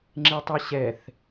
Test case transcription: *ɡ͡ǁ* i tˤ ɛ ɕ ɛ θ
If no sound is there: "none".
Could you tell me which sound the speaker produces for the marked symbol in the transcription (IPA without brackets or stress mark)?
ŋ͡ǁ